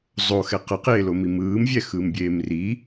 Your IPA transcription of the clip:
zˤoxɛ qʌqeːlomi mɯːmvʲɛxɯːmbʲeːm ri

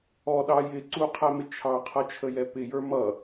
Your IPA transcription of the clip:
ɔɗɑ jɪ ǀuqʰæmɪ t͡ʃʰɑqʰʌt͡ʃʰəjɛ pɪjə˞ mʌ

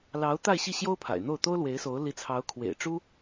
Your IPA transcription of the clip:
lɑ˧˥ʊ̯t̪a˥˧ɪ̯ɕi˥˩ ɕjo˥ʊ̯pʰa̰˨˩ɪ̯n̪o˥˩ʊ̯ t̪o˥ʊ̯lwe˧˥ɪ̯so˧˥ʊ̯ li˧˥t͡sʰɑ˧˥ʊ̯kʰwḛ˨˩ɪ̯ ʈ͡ʂu˥

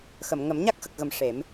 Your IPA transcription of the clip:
xə˨˩˨mŋə˨˩˦m ɲa˦˥k̚xə˨˩k̚ɣə˨˩˨m ʂe˨˩˦m

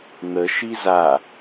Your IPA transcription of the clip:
n̪ə ʃiza

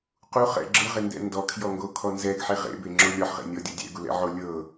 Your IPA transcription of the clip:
quχɛ̰ ɡ͡ǁɯʁendɛ̰ ndɔkʰjɔŋɡokʰɔ nzɛɡħe ʁḛbeŋ͡ǁo lʲɔħʁḛnʲɔdʲɔ dʲɛ̰ɡulɛ̰ʕo lʲɤ

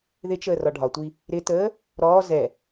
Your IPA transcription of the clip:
ðɪt͡ʃəː rɒɖʱɒtʷi | ɾɪtəː | ɾɔː zɛ

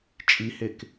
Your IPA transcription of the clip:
t͡ʃʼihek

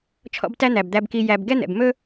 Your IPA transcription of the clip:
t͡ʃʰɔ̰˦btæ˥n̪æ˩b d̪æ˨bki˨ jæ˨b ɡɛ˥n̪ɛ̰˩b mɵ˥

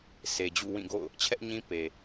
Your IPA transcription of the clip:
se˨d͡ʑṵ˦˨ wĩ˦˨ɡo̰˦˨ʊ̯ | t͡ɕʰɛ˦ʔɲĩ˦ pe˨

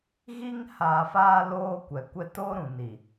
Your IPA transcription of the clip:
ɣi˦ŋ haː˨faː˦ loː˦kʷɛ˨ kʷɛ˦ to˦ɾũ˨ ni˨

